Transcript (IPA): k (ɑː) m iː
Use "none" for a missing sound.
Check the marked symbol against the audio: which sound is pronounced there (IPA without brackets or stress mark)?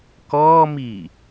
ɔː